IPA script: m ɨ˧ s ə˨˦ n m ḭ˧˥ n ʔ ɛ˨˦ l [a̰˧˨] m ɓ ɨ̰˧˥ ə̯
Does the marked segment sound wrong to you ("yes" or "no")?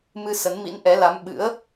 yes